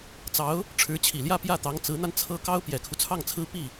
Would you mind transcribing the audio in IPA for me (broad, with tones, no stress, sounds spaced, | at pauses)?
t͡s ɑ˧˥ ʊ̯ | ʈ͡ʂʰ ɻ̩˧˥ t͡ɕʰ i˨˩ l j ä˥˧ p j ä˥˩ t̪ ɑ˧˥ ŋ t͡s ɹ̩˧˥ n̪ a˧ n t͡sʰ ɤ˥ k ɑ˥ ʊ̯ p j ɛ˨˩ kʰ u˦ t͡sʰ ɑ˥˩ ŋ t͡sʰ ɹ̩˥ p i˥˩